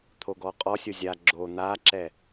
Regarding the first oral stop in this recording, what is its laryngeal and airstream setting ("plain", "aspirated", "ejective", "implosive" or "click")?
aspirated